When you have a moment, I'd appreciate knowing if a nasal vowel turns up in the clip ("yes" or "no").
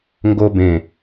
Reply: yes